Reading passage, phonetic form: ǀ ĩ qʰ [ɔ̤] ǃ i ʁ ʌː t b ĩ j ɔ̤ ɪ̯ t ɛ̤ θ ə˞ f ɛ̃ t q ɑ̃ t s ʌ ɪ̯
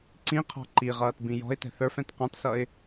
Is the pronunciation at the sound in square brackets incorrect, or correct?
correct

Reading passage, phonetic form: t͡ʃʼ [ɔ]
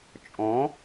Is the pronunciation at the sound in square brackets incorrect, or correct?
incorrect: ɔ̃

